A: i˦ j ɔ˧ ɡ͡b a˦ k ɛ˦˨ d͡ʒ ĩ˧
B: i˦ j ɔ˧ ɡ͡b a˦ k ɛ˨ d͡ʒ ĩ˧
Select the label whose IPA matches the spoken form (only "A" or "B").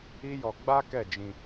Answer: A